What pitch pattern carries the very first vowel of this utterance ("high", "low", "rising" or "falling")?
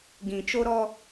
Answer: low